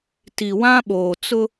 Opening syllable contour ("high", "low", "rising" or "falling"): low